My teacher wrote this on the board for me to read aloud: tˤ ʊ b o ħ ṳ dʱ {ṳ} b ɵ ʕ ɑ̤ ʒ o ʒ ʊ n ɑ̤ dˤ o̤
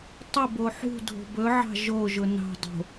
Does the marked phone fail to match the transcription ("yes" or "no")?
yes